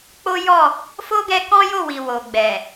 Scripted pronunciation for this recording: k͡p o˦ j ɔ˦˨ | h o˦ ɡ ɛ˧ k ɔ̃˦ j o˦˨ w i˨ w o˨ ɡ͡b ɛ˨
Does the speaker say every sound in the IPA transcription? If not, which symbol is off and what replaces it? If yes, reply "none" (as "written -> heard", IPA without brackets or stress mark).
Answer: h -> f